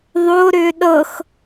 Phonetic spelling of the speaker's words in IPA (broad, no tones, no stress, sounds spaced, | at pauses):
ðˤ o ɾ ʏː ɗ ɤ x